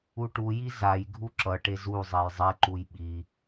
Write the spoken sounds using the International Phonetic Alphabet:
u ʈ u j i z a j ɡʱ u ǁ ʌ ʈ e z u zˤ e j zˤ e ǃ u j ɓ i

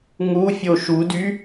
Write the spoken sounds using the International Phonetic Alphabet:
ŋ u fʲ o ʃ u d y

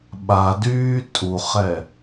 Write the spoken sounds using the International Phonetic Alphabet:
ɓ a d yː tʼ u χ ɛ

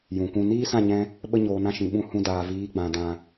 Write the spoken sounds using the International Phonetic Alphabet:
j ũ˨ kʷ ũ˧ n iː˦ s ã˦˨ ɲ ɛ̃˧ | ɓ ə˦ ɲ oː˧ n ã˦ ʃ ĩ˨ ɓ ũ˧ h ũ˧ d aː˨ v iː˨˦ ɡ͡b ã˨ d ã˨

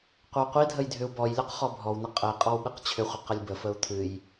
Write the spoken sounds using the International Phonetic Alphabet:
qʷ ə w qʷ i dʱ ə j dʱ ʏ u̯ b ɔ j lʲ ɔ q χ ɔ bʱ ɔ w n ə qʼ ə i̯ qʼ ɔ w ɓ ɨ q t͡ɕʰ ʏ χʷ ə q ə lʲ b ə f ə u̯ t̪ʰ ɨ j

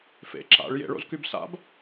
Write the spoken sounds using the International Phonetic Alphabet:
f ḛ ǁ a̰ ɭ j ḛ ɭ o̰ z k y b s a̰ b

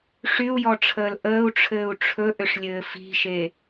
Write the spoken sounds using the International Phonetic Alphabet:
ʂ y u̯ j ɔ ʈ͡ʂʰ əː l ʔ əː u̯ ʈ͡ʂʰ ɘː u̯ ʈ͡ʂʰ ɵ ʔ ʏ ʂ lʲ ɘː f i̤ ʃ e

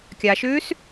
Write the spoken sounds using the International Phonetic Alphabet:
kʲ a ʃ ʉː s

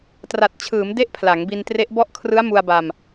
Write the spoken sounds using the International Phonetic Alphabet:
t r a˨˩ t̚ t͡ɕʰ ɯː˩˦ m d e˦˥ ʔ pʰ l a˩˦ ŋ b i˧ n t r e˦˥ ʔ b ɔ˥˩ ʔ kʰ r ɯ˦˥ a̯ m u˧ a̯ b a˧ m

